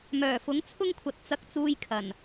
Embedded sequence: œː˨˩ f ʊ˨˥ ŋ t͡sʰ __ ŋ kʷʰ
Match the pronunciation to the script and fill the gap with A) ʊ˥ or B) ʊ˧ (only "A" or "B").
A